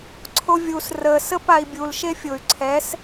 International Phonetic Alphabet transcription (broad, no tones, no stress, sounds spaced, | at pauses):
ǀʰ o vʲ u s r ə s ə p a i̯ bʲ u l ʃ e fʲ ʊ y̯ ǀʰ ɛ s